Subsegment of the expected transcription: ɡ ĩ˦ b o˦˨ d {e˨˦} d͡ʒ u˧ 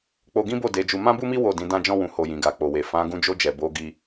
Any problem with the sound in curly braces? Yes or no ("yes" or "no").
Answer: no